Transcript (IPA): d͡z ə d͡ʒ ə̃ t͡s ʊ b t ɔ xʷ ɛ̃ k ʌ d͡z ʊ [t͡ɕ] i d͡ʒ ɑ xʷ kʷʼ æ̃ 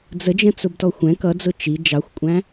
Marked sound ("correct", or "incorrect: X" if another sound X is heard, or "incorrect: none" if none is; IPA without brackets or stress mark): incorrect: t͡ʃ